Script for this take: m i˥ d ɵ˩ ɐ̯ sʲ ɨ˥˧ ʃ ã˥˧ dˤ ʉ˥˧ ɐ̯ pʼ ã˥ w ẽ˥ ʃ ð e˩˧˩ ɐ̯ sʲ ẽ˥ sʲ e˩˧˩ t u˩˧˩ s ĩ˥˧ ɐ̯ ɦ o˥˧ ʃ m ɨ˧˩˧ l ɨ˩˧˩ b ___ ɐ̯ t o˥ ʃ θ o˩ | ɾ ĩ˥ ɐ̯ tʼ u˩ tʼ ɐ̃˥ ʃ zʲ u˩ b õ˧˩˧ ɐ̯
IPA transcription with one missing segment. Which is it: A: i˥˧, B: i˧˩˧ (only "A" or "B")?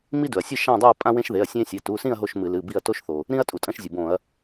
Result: A